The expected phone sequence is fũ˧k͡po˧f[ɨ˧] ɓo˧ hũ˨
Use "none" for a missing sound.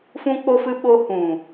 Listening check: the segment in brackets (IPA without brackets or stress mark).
ɨ˧